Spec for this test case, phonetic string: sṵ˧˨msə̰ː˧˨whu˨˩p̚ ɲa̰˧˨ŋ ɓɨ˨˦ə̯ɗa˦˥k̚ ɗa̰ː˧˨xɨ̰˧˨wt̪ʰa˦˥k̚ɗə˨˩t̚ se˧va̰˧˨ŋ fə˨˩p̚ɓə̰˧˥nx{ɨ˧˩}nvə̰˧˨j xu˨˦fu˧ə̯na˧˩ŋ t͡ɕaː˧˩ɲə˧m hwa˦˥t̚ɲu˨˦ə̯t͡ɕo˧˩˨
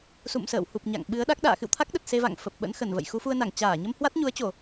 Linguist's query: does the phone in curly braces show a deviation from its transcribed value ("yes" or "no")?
yes